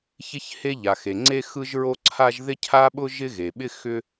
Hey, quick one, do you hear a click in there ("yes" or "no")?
yes